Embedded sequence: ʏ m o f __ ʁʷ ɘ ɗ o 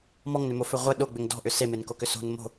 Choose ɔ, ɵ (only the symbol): ɵ